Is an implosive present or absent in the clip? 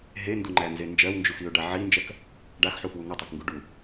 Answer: absent